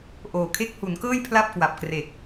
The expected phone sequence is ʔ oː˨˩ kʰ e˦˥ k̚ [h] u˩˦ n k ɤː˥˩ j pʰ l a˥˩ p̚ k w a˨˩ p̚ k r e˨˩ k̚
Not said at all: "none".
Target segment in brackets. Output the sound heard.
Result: h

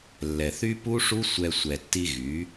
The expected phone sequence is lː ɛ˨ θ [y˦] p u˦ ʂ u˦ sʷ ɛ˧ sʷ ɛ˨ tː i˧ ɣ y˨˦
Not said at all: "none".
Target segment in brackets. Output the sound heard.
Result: y˦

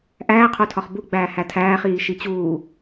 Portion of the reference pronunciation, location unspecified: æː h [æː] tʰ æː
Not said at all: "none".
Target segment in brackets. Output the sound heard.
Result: æ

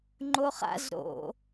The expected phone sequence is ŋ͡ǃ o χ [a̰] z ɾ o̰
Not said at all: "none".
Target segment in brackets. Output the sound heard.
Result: a̰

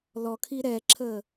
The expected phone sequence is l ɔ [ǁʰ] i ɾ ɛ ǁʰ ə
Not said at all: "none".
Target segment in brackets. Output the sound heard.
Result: kʰ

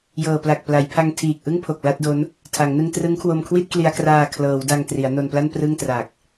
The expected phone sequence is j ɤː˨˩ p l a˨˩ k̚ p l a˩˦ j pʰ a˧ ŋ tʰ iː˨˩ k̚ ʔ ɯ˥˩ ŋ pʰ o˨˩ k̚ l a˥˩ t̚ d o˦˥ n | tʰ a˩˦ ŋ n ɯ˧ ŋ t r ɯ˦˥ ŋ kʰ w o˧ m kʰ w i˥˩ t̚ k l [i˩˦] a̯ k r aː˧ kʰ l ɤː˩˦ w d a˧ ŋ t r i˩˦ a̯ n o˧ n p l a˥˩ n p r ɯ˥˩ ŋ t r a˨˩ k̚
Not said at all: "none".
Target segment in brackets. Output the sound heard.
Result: i˧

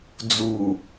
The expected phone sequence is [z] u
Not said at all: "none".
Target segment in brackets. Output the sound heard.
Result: d͡z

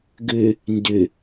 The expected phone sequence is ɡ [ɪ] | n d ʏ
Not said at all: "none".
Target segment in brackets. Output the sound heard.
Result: ʏ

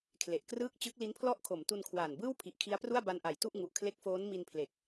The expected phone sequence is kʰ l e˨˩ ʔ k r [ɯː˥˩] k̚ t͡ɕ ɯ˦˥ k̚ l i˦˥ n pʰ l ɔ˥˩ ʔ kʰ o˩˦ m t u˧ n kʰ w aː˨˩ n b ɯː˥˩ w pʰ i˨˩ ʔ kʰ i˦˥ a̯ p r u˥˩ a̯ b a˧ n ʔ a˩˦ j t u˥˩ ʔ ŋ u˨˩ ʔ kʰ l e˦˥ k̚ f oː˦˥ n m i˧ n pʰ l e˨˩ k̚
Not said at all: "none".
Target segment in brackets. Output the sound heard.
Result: ɯː˥˩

